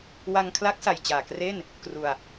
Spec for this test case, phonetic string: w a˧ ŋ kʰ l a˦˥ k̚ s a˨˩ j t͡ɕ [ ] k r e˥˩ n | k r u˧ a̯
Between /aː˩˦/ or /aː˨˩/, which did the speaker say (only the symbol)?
aː˨˩